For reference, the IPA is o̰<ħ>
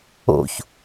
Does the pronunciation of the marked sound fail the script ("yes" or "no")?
yes